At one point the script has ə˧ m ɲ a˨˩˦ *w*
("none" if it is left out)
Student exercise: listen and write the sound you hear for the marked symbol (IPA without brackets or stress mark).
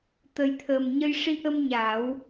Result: w